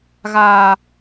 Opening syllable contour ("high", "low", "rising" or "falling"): low